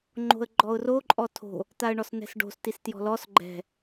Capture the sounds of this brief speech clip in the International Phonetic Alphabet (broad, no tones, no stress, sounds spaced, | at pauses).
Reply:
ŋ͡ǃ o̤ ə̯ ɡ͡ǃ ɔ ʊ̯ r o ǃʼ ɔ tʰ o̤ | t̪ a ə̯ ɳ ɔ s n ɛ̤ s ɖ o̤ s t i s t j ɔ̤ l ɔ s ɡ͡ǃ ɛ̤